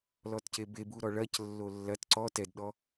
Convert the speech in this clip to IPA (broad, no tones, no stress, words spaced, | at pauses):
lɔtcebebu ɾɔɭɐc lːolːɐt ǀɔ tɛdɗɔ